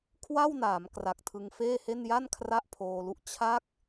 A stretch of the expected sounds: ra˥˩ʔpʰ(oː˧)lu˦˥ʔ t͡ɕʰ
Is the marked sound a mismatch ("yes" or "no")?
no